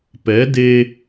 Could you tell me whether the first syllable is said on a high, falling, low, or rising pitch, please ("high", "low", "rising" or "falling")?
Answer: rising